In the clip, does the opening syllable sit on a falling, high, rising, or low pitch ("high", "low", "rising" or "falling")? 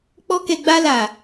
high